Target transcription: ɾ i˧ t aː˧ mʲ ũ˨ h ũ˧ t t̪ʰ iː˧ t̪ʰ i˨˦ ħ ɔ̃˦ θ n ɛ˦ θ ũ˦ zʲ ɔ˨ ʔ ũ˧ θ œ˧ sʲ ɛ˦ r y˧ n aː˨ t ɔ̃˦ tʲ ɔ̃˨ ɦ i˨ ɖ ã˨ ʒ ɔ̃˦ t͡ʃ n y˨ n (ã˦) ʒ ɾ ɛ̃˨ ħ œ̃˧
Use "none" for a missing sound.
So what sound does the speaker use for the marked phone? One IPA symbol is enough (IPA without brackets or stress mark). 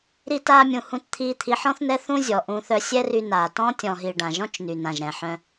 ã˨